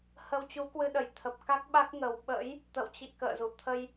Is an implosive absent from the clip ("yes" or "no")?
no